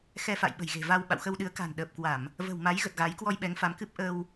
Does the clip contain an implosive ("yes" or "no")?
yes